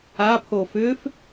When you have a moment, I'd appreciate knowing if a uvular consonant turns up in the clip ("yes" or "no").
no